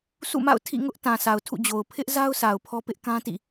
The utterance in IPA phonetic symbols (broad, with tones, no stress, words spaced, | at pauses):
sṵ˦˨ma̰˦˨ʊ̯ tʰḭ˦˨ŋʊ˦ʔ tã˨ sa˨ʊ̯tʰṵ˦˨d͡ʑo˨ʊ̯ pʰɪ˦ʔza˦ʊ̯ sa˨ʊ̯pʰɔ˦pɪ˦ʔ kã˦tḭ˦˨